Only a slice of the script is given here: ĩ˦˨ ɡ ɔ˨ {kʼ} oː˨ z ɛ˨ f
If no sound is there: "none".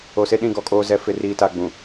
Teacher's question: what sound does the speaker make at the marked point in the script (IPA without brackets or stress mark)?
kʼ